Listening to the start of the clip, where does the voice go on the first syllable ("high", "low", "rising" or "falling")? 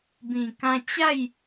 low